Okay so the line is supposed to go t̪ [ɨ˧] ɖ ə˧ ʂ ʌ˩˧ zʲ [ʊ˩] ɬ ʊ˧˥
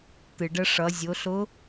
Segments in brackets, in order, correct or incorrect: incorrect: ɨ˩, incorrect: ʊ˩˧

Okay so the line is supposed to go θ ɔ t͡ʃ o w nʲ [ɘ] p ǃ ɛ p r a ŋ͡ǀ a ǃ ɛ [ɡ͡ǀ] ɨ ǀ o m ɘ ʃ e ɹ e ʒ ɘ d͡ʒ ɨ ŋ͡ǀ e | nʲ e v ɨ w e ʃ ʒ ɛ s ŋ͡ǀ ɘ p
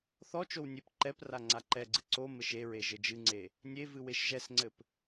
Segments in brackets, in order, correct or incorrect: incorrect: e, correct

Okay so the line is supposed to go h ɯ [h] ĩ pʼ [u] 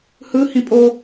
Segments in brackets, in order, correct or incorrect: correct, incorrect: o

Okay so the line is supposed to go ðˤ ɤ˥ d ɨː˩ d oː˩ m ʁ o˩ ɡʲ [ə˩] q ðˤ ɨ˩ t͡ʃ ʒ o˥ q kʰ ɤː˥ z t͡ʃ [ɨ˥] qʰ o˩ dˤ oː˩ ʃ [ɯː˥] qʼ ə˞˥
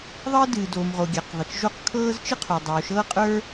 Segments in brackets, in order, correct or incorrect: incorrect: a˩, correct, incorrect: ɤː˥

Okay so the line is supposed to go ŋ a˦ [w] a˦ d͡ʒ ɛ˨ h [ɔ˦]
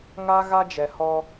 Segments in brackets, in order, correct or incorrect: incorrect: ɣ, correct

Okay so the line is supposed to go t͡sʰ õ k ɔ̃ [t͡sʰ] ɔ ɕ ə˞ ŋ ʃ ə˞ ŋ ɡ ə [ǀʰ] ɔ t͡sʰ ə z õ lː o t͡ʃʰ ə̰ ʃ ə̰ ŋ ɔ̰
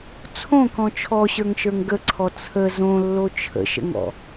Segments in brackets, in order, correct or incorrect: incorrect: t͡ʃʰ, correct

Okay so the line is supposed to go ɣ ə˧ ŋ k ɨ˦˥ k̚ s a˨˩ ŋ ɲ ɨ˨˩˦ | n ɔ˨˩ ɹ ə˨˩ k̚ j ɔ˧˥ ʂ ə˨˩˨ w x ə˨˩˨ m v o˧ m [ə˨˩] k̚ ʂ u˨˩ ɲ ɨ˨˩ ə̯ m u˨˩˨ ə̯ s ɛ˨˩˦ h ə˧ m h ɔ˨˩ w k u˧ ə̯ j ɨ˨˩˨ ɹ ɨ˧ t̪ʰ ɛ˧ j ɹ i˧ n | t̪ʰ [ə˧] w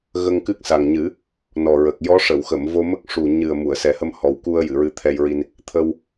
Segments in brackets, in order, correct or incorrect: incorrect: ə˦˥, correct

